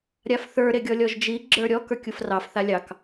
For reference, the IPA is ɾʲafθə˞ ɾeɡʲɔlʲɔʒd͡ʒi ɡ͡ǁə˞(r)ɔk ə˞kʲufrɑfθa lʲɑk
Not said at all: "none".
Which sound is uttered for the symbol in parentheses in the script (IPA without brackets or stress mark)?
ɾʲ